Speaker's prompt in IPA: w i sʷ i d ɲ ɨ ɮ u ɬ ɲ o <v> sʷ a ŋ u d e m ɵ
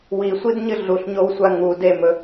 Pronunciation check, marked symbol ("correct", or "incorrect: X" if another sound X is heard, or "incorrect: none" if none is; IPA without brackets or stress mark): incorrect: w